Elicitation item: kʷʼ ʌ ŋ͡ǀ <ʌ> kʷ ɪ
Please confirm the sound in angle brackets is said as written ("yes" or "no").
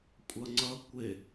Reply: yes